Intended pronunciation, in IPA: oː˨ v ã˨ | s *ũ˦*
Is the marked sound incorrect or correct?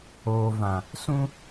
correct